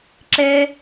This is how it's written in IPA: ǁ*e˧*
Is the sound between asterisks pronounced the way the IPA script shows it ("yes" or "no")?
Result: yes